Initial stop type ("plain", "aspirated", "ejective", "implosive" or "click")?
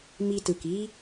plain